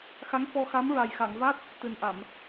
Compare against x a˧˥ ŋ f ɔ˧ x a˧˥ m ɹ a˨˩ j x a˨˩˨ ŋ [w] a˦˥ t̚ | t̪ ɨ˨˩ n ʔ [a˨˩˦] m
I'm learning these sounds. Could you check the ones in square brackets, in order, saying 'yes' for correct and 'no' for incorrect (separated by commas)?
no, no